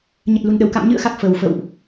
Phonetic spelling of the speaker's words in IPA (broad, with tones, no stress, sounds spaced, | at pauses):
ɲ ə˨˩ t̚ l u˨˩ n ɗ ə˧˩ w k a̰˧˨ m ɲ ɨ̰˧˨ ə̯ x a˨˩ k̚ f ə˨˩ w f ə̰˧˨ w ʔ